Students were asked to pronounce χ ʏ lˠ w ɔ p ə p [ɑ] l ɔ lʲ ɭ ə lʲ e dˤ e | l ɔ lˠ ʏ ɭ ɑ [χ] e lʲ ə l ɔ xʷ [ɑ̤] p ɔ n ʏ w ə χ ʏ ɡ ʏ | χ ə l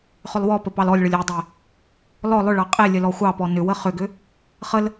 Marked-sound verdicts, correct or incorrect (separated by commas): correct, incorrect, incorrect